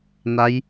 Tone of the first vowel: rising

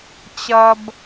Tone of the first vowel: low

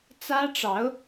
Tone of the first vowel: high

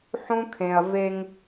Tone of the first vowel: high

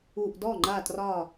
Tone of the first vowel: low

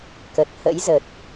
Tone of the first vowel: low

